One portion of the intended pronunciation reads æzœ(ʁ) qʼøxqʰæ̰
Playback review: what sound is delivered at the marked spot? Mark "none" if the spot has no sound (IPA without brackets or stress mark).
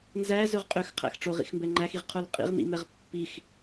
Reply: ʁ